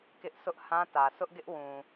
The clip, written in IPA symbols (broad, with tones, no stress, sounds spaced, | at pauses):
k ɪ˦ ʔ s ʊ˦ ʔ h ã˦ t ä˨ sʰ ʊ˦ ʔ ɡ ɪ˦ ʔ w ũ˨